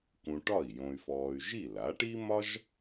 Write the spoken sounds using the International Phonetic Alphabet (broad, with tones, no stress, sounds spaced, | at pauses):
k ũ˧ ʈ ɒ˥˩ i̯ j õ˧ y̯ f ɔː˧ y̯ ʒ i˥˩ l a˩˥ ʈ i˥ m ɒ˥ ʒ